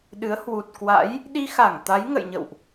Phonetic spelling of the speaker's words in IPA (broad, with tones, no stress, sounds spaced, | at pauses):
ɗ ɨ˨˦ ə̯ h w u˨˩ t̚ k w a̰˧˥ j | ɗ i˧ x a˧˩ ŋ t̪ a˨˦ j ŋ ə̰˧˨ j ɲ ə̰˧˨ w ʔ